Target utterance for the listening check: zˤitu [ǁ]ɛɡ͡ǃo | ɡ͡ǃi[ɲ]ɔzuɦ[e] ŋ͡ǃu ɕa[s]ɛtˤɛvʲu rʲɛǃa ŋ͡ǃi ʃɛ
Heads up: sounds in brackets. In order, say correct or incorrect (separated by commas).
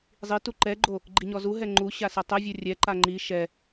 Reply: incorrect, correct, incorrect, correct